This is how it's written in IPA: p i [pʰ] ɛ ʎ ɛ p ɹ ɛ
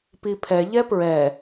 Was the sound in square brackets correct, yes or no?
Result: yes